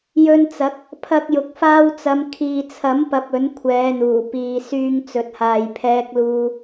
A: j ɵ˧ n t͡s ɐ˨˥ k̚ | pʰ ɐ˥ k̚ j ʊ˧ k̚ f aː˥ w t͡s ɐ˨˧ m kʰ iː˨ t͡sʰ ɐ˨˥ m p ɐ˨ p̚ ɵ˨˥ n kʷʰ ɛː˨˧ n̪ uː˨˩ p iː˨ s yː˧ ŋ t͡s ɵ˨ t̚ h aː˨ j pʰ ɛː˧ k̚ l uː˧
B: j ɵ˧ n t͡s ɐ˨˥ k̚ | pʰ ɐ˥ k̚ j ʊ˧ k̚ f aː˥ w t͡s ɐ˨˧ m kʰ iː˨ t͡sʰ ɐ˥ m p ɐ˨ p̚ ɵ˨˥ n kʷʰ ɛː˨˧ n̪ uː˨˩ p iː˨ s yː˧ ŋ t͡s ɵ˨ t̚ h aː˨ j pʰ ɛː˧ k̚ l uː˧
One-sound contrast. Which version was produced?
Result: A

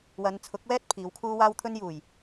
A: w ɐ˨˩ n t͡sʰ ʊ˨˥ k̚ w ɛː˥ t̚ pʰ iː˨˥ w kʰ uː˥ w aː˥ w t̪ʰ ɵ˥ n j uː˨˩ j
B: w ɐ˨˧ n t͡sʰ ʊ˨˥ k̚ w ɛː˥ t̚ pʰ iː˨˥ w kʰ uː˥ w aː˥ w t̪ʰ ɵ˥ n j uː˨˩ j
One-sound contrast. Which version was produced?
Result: B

